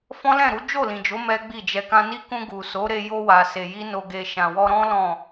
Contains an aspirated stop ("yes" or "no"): no